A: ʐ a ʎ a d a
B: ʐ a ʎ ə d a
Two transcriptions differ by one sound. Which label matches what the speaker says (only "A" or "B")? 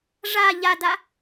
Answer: A